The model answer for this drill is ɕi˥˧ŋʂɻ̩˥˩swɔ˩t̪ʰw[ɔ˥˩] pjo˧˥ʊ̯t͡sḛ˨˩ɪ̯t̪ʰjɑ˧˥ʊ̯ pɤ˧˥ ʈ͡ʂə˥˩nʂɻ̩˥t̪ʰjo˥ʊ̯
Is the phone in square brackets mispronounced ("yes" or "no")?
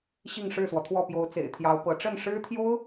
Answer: no